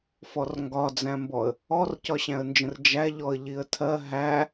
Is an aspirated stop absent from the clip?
no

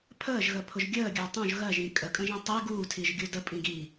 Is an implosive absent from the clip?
yes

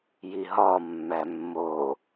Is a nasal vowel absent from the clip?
yes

